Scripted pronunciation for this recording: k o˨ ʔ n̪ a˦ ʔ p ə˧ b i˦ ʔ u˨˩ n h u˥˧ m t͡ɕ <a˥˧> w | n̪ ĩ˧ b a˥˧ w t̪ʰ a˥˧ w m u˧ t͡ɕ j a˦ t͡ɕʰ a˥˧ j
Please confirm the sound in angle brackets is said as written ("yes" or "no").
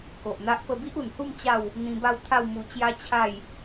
yes